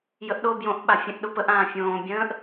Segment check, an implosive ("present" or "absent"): present